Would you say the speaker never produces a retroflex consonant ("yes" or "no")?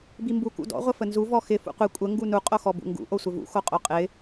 yes